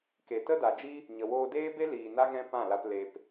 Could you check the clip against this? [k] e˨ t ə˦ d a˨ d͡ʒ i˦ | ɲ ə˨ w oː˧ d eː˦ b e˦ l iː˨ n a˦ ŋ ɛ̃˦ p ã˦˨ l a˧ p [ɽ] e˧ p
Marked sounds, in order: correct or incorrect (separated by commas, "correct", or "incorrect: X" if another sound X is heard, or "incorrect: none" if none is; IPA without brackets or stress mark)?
correct, incorrect: l